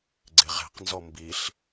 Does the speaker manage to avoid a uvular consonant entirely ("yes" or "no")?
no